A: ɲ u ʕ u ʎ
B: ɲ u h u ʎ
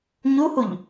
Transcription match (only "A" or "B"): B